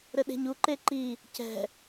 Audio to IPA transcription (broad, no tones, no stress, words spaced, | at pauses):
ɾɘɗe̤ɲuǃe ǃi | cɛ̤